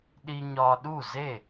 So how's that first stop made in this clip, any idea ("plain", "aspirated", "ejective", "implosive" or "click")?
implosive